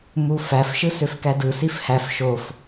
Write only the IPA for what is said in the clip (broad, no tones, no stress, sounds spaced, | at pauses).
m u f æ f ʃ ɯ s ø f k æ d ɯ s i f h æ f ʃ o f